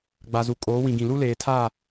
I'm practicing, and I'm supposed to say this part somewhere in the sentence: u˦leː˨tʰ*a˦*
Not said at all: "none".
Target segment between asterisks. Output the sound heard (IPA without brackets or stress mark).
a˦˨